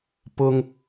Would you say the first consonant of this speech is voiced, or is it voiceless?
voiceless